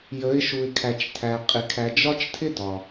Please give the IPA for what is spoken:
jə˨˦ɪ̯ʃu˨ɪ̯ kʰæ˨t͡ʃtʰæ˨qʼɪ˨ kʰæ˨d͡ʒɒ˦t͡ʃtʰɪ˦ dɒ˨

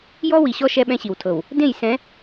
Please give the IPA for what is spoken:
jɔ˦wi˨ɕɔ˦ ʃɛ˦ɓɛ̃˦ɕi˨wtʰɤ˨w | dẽ˦˨j sɛ̃˨˦

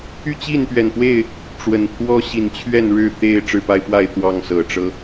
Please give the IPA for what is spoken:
y˥˨t͡ɕi˥˨npɥɛ˨˩npwe˥˨ɪ̯ | ʈ͡ʂwə˨˩npʰwɔ˦ɕi˨˦n t͡ɕʰɥɛ˥˨nɻɻ̩˥˨ t̪e˥˨ɪ̯ ʈ͡ʂɻ̩˥˨pa˦ɪ̯pwa˥˨ɪ̯ t̪wɑ˥˨ŋsɤ˨˩ʈ͡ʂɤ˦

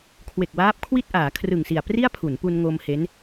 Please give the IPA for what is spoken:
kʰwe˨˩k̚waː˦˥p̚kʰwi˥˩t̚ ʔaː˩˦kʰrɯ˨˩ŋsi˨˩a̯pri˥˩a̯ pʰu˩˦npu˧nŋo˧m he˦˥n

